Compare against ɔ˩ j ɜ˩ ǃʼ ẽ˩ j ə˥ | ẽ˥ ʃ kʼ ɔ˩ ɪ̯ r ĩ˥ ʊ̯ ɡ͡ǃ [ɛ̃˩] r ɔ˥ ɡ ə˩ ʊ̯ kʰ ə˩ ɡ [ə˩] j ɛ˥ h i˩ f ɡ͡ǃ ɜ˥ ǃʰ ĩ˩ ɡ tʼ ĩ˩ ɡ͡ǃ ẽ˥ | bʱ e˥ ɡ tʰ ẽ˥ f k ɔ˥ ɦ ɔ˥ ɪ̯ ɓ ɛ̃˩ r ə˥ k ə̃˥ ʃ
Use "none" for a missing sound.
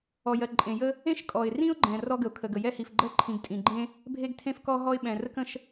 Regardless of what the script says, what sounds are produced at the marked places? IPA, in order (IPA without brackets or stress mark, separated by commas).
ɛ̃˩, ə˩